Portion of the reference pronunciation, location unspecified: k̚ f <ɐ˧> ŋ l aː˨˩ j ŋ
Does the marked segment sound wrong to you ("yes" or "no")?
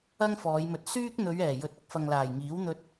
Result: yes